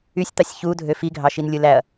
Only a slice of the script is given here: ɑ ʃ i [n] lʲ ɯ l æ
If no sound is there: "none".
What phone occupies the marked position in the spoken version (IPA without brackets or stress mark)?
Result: n